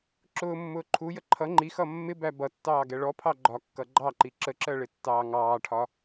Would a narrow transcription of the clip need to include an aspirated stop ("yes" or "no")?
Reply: yes